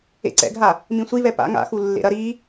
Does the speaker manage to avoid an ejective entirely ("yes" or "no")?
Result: yes